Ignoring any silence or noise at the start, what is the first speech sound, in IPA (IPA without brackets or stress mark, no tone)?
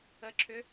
ə